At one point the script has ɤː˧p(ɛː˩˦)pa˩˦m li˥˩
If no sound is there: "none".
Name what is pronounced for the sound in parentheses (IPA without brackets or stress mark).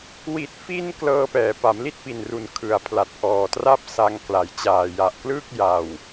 ɛː˩˦